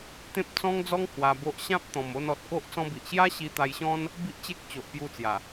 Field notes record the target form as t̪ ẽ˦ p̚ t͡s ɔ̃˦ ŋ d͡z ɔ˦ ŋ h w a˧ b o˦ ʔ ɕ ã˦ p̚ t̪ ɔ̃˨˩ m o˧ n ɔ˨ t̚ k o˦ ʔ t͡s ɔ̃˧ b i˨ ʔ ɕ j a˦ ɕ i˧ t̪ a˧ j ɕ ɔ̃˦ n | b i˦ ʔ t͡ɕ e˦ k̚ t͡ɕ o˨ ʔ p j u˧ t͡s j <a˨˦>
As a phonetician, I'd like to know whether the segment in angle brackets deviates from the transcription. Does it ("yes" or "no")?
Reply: yes